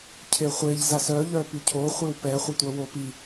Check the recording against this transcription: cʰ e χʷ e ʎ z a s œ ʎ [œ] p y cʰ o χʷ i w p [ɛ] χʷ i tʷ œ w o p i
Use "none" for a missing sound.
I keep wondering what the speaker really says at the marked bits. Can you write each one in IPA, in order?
œ, ɛ

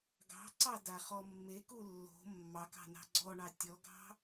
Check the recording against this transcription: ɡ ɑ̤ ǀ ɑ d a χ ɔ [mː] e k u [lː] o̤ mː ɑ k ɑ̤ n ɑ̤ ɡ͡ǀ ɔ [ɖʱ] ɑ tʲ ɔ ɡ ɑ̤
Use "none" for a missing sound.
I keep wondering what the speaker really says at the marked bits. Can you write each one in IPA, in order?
mː, lː, ɳ

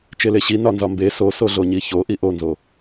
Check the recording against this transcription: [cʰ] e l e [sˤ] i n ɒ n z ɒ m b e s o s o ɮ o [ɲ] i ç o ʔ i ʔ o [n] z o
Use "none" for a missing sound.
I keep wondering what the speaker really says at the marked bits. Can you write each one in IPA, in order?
t͡ʃ, ɕ, ɲ, n

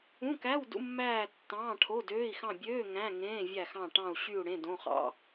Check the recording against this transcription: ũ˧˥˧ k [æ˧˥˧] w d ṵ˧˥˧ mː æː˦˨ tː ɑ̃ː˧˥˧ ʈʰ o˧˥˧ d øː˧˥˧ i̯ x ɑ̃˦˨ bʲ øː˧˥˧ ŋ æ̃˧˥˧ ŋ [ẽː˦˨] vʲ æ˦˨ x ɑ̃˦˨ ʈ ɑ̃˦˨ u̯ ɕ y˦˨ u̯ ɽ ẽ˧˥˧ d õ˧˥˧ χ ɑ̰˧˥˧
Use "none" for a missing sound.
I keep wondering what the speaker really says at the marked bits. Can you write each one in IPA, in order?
æ˧˥˧, ẽː˧˥˧

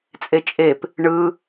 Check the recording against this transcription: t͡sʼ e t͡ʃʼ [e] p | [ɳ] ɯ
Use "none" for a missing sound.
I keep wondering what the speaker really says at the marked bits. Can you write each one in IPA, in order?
e, ɳ

